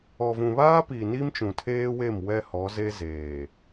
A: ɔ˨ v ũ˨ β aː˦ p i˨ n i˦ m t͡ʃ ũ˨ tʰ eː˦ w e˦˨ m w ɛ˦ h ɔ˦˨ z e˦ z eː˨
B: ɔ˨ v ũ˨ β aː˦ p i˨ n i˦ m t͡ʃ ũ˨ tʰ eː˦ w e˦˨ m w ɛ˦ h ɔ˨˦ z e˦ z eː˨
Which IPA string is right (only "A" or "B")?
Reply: B